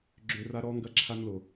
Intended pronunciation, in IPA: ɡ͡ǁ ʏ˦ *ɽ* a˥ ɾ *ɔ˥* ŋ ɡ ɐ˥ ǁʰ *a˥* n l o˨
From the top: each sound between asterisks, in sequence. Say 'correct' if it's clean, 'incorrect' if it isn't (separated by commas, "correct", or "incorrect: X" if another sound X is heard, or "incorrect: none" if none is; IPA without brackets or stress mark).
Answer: incorrect: r, correct, correct